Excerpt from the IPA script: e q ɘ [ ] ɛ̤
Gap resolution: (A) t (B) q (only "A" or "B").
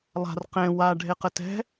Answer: A